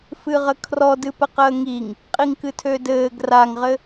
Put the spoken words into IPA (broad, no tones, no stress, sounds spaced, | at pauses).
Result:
f ɨ ʁ ə kʰ r ɔ d ɨ p ə q əː ŋ i ŋ | qʼ i ŋ k ɨ tʰ ø d ɘː ɡ r a ŋ ʁ ɘ